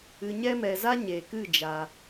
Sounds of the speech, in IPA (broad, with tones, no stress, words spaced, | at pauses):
ɨ˧ɲɛ˦mɛ˧za˦ ɲe˨kɨ˦˨ d͡ʒa˦